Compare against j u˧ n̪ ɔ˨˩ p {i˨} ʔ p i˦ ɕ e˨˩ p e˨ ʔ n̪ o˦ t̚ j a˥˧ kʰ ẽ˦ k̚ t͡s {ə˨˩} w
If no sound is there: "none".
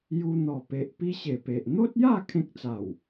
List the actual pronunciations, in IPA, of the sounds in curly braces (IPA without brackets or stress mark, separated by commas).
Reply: e˨, a˨˩